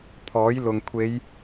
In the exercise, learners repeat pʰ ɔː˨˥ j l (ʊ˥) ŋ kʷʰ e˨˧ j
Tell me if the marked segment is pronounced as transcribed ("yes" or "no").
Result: no